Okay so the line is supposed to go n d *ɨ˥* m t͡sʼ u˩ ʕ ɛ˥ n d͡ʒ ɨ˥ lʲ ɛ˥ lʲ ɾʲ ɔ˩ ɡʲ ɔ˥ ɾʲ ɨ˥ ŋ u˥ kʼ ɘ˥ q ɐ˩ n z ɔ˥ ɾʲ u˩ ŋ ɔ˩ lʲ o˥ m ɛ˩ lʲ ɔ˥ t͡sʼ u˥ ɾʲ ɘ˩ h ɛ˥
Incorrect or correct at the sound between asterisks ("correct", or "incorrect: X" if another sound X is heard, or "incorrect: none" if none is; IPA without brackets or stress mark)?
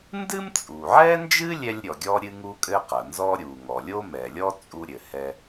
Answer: correct